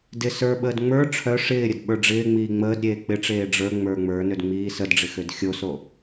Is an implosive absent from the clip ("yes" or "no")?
no